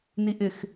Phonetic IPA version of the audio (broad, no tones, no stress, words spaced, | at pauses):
niʔɪx